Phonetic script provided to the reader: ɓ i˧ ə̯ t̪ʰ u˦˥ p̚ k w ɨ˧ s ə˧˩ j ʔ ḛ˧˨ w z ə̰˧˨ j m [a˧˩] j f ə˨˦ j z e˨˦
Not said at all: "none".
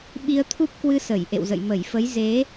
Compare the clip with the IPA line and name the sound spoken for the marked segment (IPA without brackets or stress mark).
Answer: ə˧˩